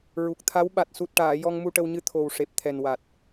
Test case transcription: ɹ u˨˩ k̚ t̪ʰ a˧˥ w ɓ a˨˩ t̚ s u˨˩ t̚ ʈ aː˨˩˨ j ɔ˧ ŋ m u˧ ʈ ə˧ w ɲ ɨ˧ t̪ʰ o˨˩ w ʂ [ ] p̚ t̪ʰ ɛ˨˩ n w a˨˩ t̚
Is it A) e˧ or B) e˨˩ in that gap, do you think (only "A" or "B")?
B